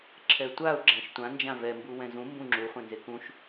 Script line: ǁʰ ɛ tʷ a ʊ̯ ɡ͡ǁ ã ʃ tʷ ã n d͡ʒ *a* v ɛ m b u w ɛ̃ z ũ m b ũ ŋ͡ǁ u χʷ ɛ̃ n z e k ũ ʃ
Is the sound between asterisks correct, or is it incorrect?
incorrect